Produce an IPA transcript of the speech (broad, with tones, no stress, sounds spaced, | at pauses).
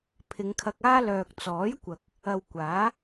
pʰ ɪ˨˧ ŋ kʰ ɐ˧ k̚ aː˥ l œː˨ k̚ t͡s ɔː˨˥ j kʷ ɐ˨ k̚ | ɐ˨ w kʷ aː˨˥